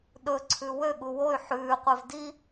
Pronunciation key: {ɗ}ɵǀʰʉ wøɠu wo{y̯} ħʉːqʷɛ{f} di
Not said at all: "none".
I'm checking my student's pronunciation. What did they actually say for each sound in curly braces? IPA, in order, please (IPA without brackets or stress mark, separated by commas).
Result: ɗ, y̯, v